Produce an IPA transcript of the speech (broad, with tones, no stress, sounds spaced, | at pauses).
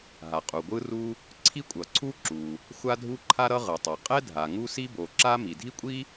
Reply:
ɦ a˩ qʼ u˩ ɡʷ ɯ˥ r u˥ | ǀʰ i˥ kʷʼ ʌ˩ ǀʰ u˥ ǁ u˩ | xʷ a˥ dʱ u˥ ǃʰ a˥ ɾ ʌ˥ ʁ ɯ˩ tˤ ʌ˩ qʼ ɛ˥ dʱ a˩ ŋ u˥ s i˥ b o˩ ǁ a˥ m i˩ dʱ i˥ kʷʼ i˥